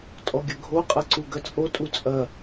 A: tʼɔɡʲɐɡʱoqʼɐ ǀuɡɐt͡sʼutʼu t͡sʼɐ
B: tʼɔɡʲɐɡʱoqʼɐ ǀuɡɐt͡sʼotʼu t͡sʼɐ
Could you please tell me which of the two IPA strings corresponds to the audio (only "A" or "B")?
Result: B